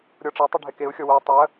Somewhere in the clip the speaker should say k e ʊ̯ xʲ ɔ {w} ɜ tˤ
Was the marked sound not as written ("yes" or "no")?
no